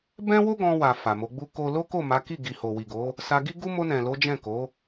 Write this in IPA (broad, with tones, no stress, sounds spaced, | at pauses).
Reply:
b ɛ̃˦ w o˦ ɡ ɔ̃˧ w a˨ f a˨ m o˨˦ ɡ͡b u˦ k o˦ l o˦ k o˦˨ m a˨˦ k i˦˨ ɡ i˨ h o˨ w i˨ ɡ o˨˦ | s a˧ ɡ i˦ ɡ u˦ m o˧ n ɛ̃˨ l o˨˦ d͡ʒ ɛ̃˦˨ k o˨˦